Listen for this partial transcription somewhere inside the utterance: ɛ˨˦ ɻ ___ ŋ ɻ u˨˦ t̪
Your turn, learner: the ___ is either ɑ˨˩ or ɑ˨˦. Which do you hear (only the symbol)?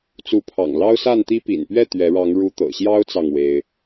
ɑ˨˦